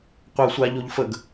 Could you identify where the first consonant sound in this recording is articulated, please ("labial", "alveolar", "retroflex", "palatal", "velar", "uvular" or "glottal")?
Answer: uvular